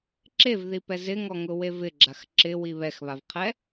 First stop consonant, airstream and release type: click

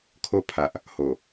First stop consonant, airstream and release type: aspirated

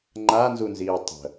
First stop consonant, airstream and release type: click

